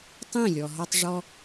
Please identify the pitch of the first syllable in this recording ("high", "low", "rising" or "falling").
falling